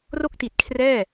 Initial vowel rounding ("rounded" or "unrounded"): rounded